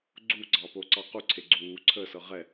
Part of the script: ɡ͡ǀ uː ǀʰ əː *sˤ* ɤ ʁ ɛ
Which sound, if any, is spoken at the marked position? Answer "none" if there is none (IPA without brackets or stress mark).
s